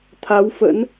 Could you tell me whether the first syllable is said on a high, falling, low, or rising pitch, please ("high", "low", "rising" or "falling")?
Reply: rising